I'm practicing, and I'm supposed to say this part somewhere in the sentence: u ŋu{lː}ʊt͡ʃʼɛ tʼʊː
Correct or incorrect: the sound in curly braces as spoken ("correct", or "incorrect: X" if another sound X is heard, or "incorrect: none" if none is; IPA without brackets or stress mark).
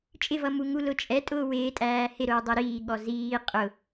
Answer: incorrect: l